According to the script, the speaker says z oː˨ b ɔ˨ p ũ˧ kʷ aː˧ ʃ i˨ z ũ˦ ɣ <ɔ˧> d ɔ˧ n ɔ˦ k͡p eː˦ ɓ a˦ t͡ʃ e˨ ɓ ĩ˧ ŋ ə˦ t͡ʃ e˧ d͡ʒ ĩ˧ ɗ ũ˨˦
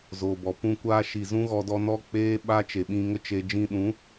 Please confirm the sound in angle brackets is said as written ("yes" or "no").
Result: yes